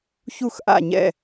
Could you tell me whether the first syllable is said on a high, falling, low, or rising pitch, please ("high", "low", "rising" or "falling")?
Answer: falling